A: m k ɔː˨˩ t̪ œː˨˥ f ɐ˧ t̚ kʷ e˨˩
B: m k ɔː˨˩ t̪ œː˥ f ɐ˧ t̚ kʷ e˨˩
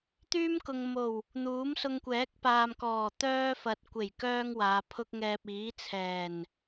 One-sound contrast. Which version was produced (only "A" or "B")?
B